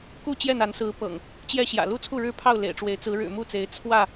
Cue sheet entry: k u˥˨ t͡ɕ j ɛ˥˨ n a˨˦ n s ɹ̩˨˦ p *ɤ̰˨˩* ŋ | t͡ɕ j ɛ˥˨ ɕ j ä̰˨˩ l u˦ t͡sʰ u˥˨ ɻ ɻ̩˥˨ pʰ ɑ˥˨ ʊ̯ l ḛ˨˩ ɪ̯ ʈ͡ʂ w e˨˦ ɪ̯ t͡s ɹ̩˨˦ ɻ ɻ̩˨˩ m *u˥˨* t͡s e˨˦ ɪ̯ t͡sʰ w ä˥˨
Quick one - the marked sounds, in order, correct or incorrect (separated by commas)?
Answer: correct, correct